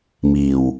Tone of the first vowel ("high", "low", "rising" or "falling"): low